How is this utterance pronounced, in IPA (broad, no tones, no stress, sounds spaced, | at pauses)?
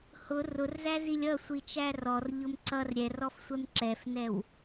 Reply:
h ʊ r ʊ r z æ z i lʲ ʌ sʷ i t͡ʃ æ r ɔ r ʎ ʊ m ǀ ʌ r ɾʲ ɛ r ɔ f sʷ ɛ m ǁ ɛ f n ɛ w